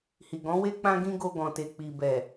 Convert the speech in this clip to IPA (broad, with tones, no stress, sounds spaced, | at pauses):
h i˨ ɡ ɔ̃˨˦ w e˦ k͡p ã˦ ɡ ĩ˦ ɡ o˧ ɡ ɔ̃˨ t e˨ k͡p i˨ b ɛ˨